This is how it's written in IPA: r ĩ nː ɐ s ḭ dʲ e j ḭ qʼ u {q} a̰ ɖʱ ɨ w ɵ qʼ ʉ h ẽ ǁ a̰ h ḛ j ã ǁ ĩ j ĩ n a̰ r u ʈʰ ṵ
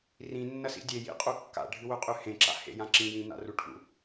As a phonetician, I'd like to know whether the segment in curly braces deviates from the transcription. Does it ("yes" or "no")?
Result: yes